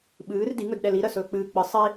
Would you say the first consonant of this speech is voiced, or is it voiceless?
voiced